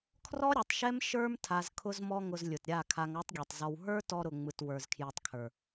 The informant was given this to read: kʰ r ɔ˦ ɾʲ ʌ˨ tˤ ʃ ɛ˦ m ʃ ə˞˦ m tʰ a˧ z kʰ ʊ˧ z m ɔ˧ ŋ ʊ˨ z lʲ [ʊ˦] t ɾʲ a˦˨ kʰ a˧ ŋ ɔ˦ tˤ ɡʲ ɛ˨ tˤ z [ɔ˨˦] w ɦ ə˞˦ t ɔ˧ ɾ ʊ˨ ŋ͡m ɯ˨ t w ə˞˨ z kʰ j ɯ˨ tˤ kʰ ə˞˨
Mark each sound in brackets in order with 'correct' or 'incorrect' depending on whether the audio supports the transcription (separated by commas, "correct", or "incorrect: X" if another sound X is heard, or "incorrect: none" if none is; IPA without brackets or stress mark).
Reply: incorrect: ʊ˨, incorrect: ɔ˧